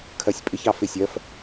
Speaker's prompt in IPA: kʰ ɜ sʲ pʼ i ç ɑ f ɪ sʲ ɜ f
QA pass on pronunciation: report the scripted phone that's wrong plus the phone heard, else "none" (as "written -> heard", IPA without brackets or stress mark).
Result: i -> ɪ